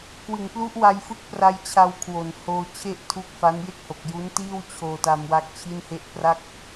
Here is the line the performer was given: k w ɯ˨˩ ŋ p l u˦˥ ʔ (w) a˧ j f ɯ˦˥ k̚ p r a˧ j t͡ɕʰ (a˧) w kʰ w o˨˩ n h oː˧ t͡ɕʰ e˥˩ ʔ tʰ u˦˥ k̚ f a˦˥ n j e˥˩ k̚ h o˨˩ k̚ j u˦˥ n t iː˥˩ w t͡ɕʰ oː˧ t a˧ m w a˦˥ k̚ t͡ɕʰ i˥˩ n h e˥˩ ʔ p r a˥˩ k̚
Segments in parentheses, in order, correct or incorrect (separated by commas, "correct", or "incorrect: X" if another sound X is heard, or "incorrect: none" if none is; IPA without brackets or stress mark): correct, correct